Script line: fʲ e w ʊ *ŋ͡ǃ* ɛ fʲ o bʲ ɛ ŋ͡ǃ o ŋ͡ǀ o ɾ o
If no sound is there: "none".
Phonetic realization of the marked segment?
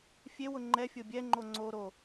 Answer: ŋ͡ǃ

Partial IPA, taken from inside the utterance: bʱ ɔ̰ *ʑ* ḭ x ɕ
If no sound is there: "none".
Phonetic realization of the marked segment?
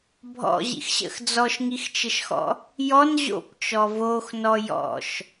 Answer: ʑ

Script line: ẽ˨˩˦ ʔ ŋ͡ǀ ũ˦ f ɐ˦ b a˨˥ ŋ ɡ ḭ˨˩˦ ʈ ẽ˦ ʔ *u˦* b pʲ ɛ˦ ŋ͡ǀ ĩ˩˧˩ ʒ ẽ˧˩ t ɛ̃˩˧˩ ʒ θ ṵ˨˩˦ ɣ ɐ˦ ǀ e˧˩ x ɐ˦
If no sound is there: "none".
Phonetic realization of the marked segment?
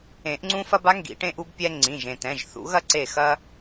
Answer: u˦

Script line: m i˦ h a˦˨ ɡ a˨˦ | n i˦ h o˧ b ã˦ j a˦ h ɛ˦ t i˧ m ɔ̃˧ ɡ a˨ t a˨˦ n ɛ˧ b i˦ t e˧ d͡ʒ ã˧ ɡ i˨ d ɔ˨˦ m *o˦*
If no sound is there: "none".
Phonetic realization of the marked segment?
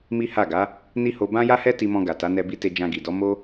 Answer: o˦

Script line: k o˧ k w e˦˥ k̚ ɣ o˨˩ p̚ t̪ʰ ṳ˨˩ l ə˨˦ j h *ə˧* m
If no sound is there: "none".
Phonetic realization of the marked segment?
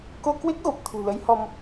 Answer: ɔ˧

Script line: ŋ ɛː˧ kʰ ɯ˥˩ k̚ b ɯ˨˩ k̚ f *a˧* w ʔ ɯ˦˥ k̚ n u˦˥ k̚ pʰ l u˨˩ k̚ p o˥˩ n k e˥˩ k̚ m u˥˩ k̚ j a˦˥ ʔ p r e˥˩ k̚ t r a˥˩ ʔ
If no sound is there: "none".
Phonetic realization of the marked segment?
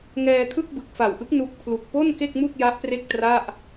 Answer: a˨˩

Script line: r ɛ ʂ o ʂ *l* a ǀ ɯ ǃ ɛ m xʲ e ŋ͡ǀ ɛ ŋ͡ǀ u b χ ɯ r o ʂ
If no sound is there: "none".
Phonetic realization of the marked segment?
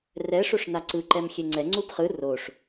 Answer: n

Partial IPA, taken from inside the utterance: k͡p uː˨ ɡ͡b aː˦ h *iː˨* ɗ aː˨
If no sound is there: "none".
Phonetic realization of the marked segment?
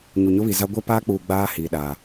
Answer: iː˨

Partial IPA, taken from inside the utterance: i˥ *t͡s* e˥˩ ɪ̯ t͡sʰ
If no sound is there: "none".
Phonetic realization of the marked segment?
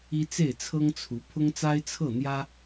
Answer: t͡s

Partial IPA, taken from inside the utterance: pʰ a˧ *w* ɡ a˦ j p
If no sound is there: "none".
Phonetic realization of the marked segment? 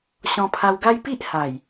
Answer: w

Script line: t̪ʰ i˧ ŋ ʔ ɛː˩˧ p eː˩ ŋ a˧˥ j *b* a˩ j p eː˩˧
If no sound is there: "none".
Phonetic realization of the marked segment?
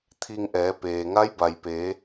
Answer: b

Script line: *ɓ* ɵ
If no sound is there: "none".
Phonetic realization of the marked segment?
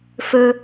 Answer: f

